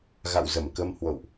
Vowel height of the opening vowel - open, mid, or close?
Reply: open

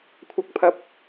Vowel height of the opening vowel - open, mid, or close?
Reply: open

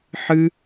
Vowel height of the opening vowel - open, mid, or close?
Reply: close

